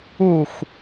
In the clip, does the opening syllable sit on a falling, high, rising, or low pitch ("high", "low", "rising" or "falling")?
low